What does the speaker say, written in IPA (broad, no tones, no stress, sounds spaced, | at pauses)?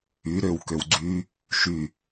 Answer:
y ɾ ø w k ø w ɡ͡ǀ y | ʃ y